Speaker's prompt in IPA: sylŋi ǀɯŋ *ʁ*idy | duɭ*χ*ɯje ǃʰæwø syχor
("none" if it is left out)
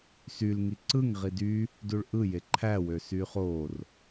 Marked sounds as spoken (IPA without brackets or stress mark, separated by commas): ʁ, ʔ